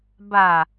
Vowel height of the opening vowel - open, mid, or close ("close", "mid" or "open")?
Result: open